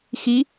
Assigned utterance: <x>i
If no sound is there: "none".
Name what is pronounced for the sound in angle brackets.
x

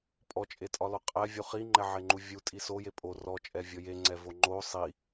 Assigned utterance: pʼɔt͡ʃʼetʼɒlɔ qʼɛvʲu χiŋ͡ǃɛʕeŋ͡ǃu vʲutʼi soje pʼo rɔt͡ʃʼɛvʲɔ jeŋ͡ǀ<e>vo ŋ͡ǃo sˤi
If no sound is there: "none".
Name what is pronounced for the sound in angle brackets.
ɛ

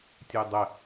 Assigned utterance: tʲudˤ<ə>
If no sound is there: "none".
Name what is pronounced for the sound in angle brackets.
ə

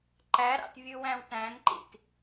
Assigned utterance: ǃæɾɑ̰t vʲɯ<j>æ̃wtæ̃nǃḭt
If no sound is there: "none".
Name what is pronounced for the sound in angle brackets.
w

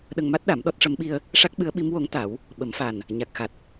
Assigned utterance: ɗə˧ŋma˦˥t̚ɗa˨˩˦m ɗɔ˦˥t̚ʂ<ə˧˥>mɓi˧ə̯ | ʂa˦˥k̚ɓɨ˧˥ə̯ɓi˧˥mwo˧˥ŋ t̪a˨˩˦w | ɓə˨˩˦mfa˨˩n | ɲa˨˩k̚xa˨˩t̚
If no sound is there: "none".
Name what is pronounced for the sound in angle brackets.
ə˧˥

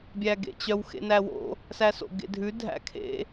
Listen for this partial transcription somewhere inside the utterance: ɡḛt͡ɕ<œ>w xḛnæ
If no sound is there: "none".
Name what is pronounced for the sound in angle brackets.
œ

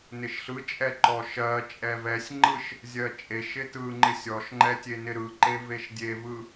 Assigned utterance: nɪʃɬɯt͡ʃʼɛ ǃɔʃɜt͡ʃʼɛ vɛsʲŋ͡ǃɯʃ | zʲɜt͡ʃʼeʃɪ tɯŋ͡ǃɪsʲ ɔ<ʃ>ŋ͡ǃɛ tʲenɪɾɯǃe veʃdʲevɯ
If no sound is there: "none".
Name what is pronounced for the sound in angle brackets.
ʃ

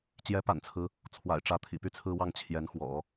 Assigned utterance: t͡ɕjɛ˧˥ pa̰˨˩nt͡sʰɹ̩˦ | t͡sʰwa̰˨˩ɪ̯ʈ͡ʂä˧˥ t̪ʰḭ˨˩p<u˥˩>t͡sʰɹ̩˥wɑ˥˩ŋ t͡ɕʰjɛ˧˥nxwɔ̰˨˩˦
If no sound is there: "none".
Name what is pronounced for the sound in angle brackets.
y˥˩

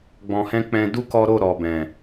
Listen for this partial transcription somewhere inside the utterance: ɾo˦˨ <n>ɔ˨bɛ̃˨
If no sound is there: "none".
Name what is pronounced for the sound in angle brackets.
ɾ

